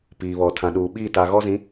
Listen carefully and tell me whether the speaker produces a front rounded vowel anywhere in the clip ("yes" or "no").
no